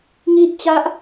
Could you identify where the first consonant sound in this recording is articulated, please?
velar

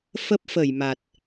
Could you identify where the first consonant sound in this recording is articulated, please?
labial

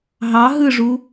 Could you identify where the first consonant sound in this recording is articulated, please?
glottal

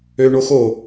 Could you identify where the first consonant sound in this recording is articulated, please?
retroflex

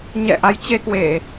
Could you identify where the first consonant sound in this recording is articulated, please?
palatal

